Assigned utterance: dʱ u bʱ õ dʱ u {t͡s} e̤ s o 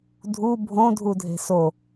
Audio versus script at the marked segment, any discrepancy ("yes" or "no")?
yes